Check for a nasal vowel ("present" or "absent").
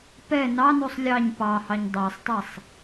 absent